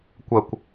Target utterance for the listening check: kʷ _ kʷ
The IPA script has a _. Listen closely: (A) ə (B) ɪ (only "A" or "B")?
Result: A